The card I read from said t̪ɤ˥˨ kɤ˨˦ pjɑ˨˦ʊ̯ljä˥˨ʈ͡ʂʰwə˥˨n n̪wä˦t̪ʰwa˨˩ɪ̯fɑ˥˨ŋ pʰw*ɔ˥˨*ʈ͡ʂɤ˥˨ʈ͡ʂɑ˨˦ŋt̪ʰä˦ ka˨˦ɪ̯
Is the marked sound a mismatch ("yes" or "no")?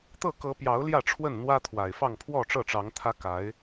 no